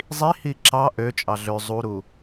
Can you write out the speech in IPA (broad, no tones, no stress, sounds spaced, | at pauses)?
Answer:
zˤ i h i ǁ ɑ ʔ ø t͡ʃʼ ɑ ɮ ø zˤ u ɾ u